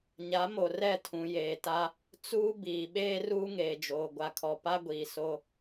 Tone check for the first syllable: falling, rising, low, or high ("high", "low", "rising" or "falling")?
rising